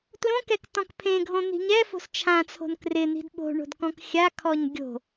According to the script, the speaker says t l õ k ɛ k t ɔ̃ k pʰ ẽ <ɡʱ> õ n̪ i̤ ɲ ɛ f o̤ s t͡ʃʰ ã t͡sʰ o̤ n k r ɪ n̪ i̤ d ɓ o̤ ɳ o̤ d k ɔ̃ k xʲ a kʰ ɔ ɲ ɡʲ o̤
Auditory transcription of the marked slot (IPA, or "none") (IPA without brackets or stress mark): ɡʱ